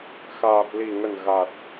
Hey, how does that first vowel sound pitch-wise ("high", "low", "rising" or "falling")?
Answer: low